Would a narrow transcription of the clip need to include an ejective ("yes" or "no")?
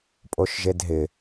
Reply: yes